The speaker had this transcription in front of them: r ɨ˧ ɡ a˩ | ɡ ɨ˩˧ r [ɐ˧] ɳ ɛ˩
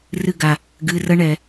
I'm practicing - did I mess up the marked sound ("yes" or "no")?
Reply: no